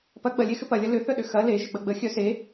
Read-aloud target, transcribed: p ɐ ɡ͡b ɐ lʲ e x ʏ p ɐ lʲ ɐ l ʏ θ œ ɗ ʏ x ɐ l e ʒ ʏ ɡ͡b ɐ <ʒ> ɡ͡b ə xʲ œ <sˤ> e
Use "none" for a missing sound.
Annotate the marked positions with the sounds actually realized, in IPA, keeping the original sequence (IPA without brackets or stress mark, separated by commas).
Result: none, s